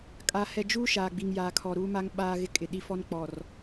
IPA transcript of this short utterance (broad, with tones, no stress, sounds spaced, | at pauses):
kʼ a˨ h ɛ˨ d͡ʒ uː˦ ʃ aː˨ ɡ͡b i˨ ŋ j aː˨ kʰ ɔ˨ ɾ uː˦ m a˦ ŋ ɓ aː˦ ɣ ɪ˦ kʼ ɪ˨ ɗ i˦ f ɔ˦ n k͡p ɔ˨ r